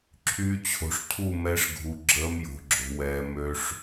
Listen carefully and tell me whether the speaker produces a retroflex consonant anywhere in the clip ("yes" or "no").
yes